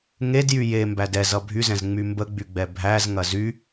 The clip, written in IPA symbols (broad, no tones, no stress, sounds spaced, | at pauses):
ŋ e d j y j e m b æ d ɛ z ʌ bʱ y z ɛ̃ z ŋ͡m y m b ə ɡ͡b y ɡ͡b ɛ bʱ æ z ŋ ɐ z y